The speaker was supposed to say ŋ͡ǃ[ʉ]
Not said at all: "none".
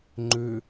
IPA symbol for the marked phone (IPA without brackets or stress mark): ʉ